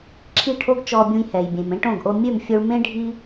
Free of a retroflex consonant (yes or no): no